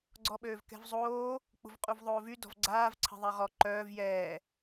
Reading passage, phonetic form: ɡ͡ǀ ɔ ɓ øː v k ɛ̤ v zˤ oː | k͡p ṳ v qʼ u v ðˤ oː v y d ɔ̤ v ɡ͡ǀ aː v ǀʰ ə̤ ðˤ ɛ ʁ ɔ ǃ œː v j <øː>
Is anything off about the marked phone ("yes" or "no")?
yes